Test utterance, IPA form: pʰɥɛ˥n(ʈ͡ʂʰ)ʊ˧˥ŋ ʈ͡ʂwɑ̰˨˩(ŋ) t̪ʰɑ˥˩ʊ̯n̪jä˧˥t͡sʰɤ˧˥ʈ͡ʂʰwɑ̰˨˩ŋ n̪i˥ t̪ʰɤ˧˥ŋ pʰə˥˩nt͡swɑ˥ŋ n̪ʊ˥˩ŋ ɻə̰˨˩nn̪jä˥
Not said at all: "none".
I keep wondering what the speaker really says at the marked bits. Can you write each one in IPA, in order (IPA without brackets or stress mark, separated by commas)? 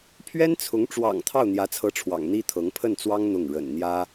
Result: t͡sʰ, ŋ